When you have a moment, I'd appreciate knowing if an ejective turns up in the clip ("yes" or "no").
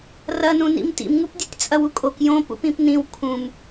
yes